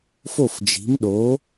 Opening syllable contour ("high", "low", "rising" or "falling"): falling